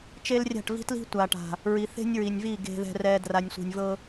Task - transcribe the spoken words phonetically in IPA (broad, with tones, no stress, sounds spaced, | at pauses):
t͡ʃ e˦ l rʲ a̤˦˨ ʈ v i̤˦ t l i̤˦ tʷ a˨ ʈ a̤˨ | ɹ i˨ θ e̤˦ nʲ ɹ i˨ nʲ v i˦˨ ɡ e̤˨ ð ɛ̤˨ r ɛ˨ d r a˨ nʲ sʷ i̤˨ nʲ v ɤ˦